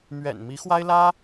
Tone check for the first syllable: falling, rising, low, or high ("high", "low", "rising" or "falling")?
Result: low